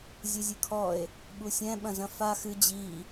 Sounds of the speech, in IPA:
zʲɘzʲɨkʰɔe̯ | ɓusʲɛ̃ ɓɐ̃zɐ̃fa xɨ d͡ʑi

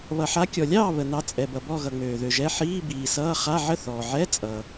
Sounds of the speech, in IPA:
βʌ˩ħa˨˦kʲɔ˩lʲɑː˥˨ βə˩nɑ˨˦ t͡sʼɛ˩bʌ˩bɔ˥˨ ɣʌ˩ŋ͡møː˩ðø˩ʒɛ˧˥˧ ħiː˧˥˧biː˩sʌː˧˥˧ χa˧˥˧ʕə˥˨θɔː˩ ʕɛ˧˥˧t͡sʼʌ˩

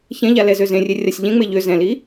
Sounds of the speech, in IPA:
çɛ̃ʎalɛzø zẽrʲerʲasʲ ʎẽŋ͡me ʎø zɛ̃li

